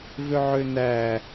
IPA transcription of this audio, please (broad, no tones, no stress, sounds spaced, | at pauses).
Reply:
v ø ʕ ø n æ